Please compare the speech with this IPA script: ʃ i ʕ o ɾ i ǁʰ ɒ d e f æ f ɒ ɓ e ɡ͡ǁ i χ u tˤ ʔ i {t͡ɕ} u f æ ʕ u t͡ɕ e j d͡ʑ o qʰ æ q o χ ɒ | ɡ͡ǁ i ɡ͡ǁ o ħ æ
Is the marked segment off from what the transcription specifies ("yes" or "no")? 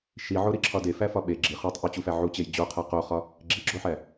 no